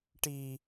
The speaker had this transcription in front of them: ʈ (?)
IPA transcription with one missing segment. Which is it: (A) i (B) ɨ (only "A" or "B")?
A